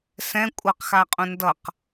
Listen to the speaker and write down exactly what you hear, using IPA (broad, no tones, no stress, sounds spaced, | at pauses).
s ɛ̃ kʷʼ ʌ q x a qʼ ũ n d ʌ q